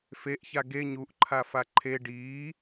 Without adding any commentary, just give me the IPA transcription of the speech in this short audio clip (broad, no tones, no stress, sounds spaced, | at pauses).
f e ʔ ç a ɡ e ɲ u ʔ ǃʰ a f a ǃʰ e ɖ iː